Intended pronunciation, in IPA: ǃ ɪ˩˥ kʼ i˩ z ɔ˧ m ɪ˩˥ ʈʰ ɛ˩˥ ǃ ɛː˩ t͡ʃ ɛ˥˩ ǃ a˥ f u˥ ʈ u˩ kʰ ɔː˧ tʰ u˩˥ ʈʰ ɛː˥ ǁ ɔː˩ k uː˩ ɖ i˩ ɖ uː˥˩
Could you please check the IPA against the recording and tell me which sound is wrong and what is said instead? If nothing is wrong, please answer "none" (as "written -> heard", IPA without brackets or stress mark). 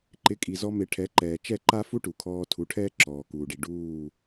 none